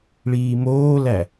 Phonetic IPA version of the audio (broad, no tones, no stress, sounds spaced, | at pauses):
ɭ iː m oː l æ